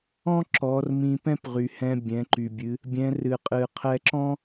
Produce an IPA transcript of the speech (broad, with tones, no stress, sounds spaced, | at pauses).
ɔ̃˥ ǁ ɔ˩˧ r m ĩ˧ p ɛ̃˥ p ʁ y˩ h ɛ̃˧ bʲ ɛ̃˩˧ ǃ y˩ bʲ ɨ˩˧ | bʲ ɛ̃˩˧ r ɨ˩ qʼ ɨ˩ qʰ ɛ˧ ǁ ɔ̃˥